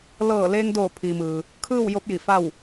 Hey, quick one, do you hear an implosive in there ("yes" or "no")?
no